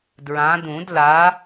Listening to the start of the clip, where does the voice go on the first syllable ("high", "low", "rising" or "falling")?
rising